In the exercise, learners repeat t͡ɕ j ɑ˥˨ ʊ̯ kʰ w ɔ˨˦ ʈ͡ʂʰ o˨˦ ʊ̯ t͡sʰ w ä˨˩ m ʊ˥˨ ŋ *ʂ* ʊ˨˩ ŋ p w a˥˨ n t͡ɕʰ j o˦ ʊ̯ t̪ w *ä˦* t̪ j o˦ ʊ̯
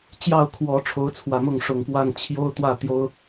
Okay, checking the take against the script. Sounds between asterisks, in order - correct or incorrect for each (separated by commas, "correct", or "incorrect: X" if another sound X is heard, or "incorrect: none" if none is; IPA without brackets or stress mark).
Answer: correct, incorrect: ä˥˨